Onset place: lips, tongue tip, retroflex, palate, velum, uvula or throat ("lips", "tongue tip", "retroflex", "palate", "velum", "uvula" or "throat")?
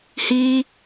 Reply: throat